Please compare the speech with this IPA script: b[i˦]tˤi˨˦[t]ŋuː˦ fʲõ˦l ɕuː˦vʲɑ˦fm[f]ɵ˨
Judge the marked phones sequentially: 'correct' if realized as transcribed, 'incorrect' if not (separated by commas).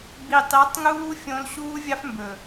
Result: incorrect, incorrect, incorrect